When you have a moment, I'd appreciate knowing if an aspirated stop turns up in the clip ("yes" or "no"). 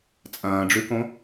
no